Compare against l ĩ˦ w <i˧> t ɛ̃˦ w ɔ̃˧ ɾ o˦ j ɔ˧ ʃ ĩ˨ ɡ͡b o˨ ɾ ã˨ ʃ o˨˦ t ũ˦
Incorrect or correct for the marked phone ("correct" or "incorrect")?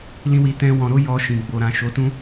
correct